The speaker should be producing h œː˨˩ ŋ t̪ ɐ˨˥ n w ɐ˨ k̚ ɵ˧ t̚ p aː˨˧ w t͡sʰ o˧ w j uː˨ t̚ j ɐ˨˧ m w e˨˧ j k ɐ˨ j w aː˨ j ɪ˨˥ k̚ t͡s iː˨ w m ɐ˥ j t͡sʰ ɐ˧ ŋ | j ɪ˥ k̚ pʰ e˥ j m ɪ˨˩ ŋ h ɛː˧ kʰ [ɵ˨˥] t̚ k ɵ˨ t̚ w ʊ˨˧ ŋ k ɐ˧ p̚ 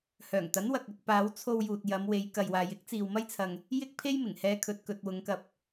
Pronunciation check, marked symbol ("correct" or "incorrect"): incorrect